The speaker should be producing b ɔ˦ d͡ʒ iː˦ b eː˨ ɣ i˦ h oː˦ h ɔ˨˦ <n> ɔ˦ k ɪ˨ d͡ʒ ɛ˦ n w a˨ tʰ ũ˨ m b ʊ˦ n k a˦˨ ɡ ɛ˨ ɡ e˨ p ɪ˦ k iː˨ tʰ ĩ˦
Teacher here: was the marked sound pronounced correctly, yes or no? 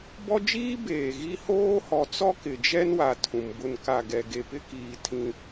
no